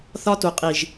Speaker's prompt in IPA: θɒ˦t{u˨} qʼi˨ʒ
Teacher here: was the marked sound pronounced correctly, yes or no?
yes